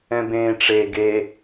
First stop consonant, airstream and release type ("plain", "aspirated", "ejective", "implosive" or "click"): plain